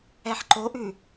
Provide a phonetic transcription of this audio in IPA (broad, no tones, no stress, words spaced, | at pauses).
ɛħǃoʔʉ